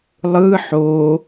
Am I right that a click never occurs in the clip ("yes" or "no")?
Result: yes